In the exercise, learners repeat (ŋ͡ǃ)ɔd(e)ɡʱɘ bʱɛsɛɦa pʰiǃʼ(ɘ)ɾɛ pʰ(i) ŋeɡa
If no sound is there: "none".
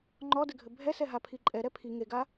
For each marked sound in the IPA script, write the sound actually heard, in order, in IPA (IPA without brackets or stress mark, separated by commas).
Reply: ŋ͡ǃ, ɘ, ɛ, i